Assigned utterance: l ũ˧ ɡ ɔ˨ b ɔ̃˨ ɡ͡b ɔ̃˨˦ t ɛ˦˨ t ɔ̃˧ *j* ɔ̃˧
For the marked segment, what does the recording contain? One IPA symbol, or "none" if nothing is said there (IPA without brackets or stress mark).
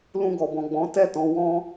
w